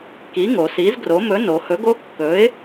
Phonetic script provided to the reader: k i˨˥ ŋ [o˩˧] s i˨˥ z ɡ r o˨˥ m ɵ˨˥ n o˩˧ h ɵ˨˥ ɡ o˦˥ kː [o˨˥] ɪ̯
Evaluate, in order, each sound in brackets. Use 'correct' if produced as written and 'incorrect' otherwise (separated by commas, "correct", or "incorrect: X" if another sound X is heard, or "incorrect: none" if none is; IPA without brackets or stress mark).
correct, incorrect: ɵ˨˥